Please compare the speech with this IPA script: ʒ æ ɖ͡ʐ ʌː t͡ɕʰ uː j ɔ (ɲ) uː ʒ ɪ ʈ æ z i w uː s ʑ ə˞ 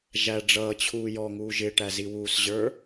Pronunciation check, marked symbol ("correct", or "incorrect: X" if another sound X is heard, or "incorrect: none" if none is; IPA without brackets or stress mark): incorrect: ŋ